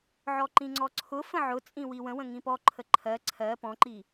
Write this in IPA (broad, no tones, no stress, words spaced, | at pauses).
ʕɔǃĩŋ͡ǀɔǀʰʊ fə̃ʕʊt͡sʼĩ wiwə̃wə̃ ŋĩpɔǃʰə ǃʰɜ ǀʰɜ pɔ̃ǃi